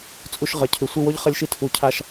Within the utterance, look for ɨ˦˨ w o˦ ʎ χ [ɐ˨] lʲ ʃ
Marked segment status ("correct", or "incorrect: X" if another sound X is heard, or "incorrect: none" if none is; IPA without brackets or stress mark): incorrect: ɐ˦